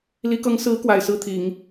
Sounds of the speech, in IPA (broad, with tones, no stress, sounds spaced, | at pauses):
l i˧˥ k ɤ˧˥ ŋ s ɹ̩˧˥ k w a˨˩ ɪ̯ s ɹ̩˥˩ t̪ʰ i˨˩˦ ŋ